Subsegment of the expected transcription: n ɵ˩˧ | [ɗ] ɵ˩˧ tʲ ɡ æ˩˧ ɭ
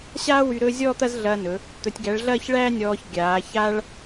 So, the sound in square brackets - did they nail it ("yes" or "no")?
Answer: no